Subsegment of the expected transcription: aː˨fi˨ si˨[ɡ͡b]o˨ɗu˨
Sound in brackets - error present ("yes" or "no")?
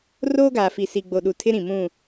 no